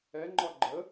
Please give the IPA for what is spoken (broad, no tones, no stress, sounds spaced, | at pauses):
ɛ ŋ͡ǃ ɒ ɡ͡ǃ ə